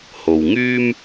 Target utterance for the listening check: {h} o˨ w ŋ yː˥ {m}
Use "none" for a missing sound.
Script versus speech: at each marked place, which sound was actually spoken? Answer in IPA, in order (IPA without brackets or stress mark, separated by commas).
h, m